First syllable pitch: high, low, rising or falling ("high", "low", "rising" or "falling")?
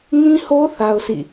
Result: high